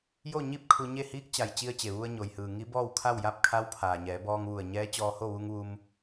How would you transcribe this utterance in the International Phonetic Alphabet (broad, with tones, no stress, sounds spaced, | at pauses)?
j o˥˨ ɲ i˥˨ p̚ kʰ u˧ ɲ e˥˨ h iː˧˥ k̚ t͡ɕ a˩ j t͡ɕ i˧ ə̯ t͡ɕ e˩ ʋ u˧ ə̯ ɲ o˩ j h ɯː˩ ŋ i˧˥ b ɔː˥˨ w kʰ a˥˨ w j a˥˨ p̚ kʰ a˧˥ w pʰ aː˩ ɲ ɛː˩˧ b ɔː˧ ŋ ʋ u˧˩ ə̯ ɲ ɛː˧˥ t͡ɕ ɔː˧ h o˥˨ ʋ u˧ ŋ ʋ u˧ m